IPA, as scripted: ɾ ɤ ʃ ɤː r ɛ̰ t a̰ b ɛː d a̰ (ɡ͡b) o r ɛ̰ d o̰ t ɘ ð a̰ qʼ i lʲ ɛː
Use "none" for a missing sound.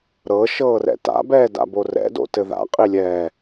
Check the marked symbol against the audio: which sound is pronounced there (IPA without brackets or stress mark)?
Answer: b